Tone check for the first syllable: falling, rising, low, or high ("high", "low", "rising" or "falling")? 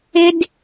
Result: high